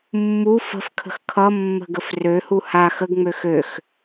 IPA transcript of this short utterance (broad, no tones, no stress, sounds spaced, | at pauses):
mː u f ə̤ f kʰ ə̤ x kʰ ʌ mː ə̤ ɡ ə f r ø h u h a x ə ɡ ŋ͡m ø x ø x